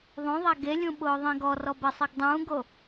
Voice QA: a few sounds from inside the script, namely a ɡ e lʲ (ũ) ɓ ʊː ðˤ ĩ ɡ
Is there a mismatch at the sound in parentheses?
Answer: no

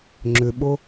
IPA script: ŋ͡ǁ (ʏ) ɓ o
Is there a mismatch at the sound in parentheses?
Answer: no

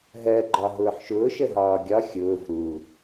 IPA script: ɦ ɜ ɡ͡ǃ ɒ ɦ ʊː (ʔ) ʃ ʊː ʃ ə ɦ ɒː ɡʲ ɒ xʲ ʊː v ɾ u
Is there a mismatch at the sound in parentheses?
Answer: yes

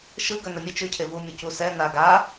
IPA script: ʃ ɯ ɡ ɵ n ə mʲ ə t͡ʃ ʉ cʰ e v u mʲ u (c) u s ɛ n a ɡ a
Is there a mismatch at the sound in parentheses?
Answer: no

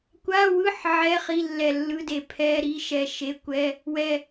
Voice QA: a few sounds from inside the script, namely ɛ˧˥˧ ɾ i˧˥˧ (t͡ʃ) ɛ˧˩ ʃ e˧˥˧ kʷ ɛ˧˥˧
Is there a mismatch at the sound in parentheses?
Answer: yes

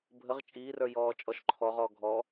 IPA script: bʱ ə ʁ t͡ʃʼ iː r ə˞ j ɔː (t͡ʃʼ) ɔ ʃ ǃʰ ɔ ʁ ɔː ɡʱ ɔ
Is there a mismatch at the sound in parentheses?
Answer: no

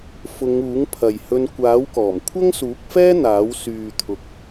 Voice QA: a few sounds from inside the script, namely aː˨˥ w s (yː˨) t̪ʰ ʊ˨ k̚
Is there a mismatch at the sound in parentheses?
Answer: no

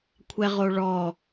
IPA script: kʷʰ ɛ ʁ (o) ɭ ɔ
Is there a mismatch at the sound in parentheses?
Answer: no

